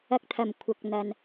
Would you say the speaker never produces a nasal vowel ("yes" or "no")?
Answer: yes